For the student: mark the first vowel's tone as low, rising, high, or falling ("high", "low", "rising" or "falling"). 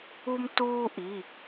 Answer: high